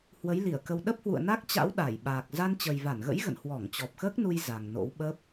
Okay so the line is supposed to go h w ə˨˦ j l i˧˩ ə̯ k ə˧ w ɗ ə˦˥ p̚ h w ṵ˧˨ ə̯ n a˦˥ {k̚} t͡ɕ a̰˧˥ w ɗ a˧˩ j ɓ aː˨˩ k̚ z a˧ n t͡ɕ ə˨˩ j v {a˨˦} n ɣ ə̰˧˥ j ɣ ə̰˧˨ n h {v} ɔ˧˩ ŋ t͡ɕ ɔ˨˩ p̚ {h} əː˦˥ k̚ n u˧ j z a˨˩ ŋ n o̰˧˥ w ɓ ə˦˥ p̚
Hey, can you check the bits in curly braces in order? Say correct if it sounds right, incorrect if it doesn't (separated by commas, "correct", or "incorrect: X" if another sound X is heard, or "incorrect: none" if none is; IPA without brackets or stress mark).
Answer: correct, incorrect: a˧˩, incorrect: w, incorrect: x